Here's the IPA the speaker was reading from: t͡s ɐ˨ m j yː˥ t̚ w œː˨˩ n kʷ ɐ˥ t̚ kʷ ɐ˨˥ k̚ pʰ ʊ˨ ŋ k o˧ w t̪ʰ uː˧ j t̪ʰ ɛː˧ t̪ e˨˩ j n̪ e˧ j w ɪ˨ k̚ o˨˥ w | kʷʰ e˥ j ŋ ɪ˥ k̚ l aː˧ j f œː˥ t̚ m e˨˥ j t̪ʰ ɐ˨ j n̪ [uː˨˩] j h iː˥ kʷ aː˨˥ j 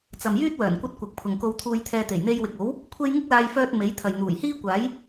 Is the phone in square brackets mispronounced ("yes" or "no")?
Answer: no